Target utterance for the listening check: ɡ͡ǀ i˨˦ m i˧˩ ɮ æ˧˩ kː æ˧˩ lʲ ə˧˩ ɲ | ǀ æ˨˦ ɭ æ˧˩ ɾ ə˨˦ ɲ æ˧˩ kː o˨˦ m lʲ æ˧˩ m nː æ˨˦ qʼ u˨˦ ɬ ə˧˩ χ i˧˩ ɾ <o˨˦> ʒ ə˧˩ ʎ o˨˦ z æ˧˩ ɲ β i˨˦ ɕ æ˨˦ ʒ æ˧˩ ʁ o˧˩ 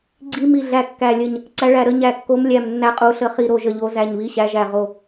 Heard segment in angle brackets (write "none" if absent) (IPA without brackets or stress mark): o˧˩